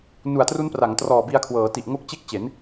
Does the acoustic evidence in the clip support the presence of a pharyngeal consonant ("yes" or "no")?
no